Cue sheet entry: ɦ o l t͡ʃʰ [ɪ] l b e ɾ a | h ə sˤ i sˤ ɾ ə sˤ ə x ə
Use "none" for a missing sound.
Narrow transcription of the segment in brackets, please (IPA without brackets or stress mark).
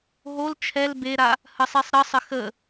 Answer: ɛ